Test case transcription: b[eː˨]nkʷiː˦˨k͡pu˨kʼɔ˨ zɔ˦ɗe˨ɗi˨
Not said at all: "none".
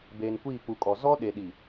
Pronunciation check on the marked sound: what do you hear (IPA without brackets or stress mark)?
eː˨